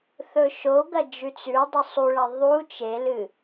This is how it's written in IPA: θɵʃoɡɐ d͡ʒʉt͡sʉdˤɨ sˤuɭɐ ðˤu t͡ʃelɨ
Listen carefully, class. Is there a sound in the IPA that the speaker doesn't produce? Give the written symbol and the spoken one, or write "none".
none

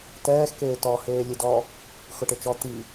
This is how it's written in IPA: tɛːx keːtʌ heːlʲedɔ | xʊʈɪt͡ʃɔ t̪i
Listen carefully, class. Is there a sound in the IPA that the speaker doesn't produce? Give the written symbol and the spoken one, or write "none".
ʌ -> ɔ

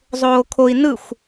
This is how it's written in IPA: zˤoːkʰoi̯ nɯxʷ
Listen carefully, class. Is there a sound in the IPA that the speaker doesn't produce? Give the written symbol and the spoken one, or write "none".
none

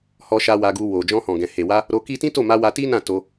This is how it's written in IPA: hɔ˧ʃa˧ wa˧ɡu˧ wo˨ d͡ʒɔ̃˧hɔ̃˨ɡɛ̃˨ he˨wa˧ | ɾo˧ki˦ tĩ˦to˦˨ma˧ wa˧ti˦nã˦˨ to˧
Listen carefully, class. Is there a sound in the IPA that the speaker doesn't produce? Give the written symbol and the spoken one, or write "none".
none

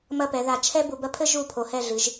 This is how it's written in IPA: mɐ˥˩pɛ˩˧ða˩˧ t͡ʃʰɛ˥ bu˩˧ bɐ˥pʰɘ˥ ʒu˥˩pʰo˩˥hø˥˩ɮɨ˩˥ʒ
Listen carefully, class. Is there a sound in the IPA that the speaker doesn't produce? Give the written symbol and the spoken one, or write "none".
ø˥˩ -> ɛ˥˩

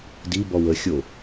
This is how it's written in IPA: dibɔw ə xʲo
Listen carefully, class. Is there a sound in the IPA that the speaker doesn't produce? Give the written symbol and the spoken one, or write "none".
none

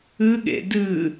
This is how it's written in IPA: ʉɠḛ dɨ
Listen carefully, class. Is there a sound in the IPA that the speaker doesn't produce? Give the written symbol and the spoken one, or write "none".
ʉ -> ɨ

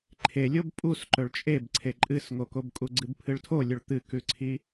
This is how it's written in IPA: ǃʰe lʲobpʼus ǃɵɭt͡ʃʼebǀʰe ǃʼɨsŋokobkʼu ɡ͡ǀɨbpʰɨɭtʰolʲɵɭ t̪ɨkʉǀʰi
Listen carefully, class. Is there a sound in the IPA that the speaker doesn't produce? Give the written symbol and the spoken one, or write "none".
none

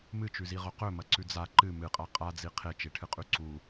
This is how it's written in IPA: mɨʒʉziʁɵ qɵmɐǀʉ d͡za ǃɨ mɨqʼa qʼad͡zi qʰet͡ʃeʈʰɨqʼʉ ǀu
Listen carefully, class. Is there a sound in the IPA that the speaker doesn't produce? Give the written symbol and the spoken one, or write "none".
ʒ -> t͡ʃ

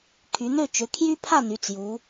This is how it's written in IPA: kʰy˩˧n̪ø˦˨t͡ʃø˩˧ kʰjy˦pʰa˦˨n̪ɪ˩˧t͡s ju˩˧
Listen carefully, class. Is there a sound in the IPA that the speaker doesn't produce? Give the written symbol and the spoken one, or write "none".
ɪ˩˧ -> y˩˧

